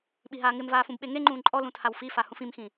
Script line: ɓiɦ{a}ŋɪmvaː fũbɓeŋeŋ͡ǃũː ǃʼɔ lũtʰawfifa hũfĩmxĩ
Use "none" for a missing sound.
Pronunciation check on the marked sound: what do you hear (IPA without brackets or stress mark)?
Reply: aː